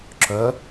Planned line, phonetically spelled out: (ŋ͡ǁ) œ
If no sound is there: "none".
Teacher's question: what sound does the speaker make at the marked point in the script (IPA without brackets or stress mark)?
ǁ